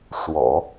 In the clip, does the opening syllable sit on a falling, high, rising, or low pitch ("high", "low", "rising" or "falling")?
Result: low